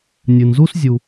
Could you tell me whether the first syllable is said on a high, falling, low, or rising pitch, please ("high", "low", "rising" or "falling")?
low